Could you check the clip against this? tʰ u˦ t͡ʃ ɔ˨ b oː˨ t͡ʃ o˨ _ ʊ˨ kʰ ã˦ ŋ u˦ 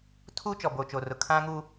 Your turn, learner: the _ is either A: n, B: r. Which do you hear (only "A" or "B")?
B